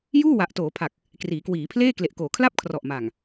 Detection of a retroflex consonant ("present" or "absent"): absent